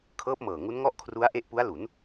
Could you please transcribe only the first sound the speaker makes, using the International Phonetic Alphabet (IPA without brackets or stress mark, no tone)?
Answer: kʰ